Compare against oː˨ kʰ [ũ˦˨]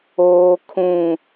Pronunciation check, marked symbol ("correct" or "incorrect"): incorrect